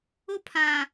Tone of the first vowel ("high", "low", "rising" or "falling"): high